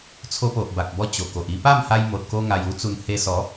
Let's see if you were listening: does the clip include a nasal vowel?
no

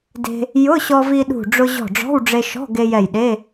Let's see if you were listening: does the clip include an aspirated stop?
no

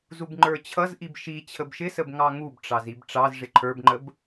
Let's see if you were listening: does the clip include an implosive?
no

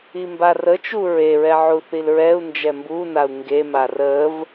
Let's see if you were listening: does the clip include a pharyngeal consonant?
yes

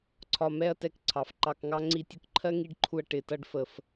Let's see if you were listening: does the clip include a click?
yes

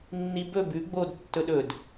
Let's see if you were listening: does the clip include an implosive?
yes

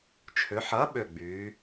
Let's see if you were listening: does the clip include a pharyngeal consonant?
yes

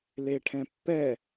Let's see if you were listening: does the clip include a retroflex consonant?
yes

